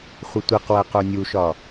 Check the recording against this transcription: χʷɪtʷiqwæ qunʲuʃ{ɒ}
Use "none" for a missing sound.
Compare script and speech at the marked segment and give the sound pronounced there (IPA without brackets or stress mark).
ɒ